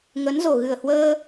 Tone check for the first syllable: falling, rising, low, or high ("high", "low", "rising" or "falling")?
rising